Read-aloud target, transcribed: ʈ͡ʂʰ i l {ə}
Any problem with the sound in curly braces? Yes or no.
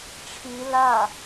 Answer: yes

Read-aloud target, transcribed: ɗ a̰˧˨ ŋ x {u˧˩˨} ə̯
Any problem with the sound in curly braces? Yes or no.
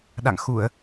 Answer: no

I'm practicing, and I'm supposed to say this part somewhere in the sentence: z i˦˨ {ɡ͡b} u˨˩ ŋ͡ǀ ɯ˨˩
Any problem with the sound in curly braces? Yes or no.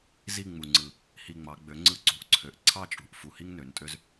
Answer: yes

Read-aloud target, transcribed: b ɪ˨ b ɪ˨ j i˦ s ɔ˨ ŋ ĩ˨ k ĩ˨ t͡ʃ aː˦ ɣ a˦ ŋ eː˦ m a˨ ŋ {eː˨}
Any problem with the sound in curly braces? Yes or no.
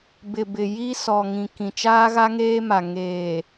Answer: no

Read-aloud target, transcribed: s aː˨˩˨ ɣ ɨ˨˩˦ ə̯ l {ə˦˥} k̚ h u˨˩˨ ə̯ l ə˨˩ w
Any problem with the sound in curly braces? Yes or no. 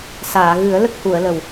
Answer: no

